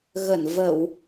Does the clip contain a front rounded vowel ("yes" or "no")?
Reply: no